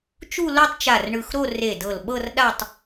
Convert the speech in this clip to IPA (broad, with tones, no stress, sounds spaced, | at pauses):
t͡ʃ u˥˧ l o˥˧ tˤ t͡ʃ a˧˩ r ɳ ɯ˧˩ x ɾ o˥˧ r e˧˩ d ɤ˧˩ l ɓ ɤ˥˧ r ɗ a˥˧ tˤ